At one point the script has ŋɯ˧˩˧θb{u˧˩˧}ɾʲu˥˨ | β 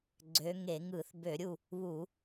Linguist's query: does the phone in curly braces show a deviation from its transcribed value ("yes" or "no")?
yes